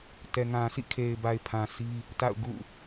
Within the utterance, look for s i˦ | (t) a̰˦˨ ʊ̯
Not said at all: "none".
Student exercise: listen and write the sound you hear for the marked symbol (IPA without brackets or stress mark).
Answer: t